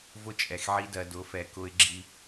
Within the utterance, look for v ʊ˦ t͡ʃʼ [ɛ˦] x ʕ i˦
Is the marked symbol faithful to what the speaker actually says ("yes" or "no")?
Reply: no